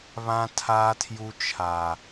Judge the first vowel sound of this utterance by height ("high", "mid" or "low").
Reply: low